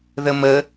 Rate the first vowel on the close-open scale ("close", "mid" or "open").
mid